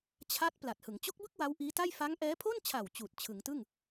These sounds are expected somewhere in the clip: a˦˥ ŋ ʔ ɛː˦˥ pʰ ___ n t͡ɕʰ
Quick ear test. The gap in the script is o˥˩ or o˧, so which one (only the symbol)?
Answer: o˥˩